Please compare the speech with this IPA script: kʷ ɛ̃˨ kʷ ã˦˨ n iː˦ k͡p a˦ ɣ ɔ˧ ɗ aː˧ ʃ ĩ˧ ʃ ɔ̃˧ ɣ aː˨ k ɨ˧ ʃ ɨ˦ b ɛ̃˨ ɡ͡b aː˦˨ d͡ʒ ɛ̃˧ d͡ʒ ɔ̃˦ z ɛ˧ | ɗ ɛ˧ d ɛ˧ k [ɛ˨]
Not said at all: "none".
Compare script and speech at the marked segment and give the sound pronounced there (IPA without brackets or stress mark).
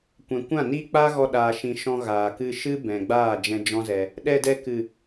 ɨ˨